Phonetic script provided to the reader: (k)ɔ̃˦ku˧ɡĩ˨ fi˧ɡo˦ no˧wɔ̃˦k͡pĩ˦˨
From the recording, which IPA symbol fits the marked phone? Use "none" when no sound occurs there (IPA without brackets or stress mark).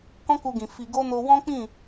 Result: k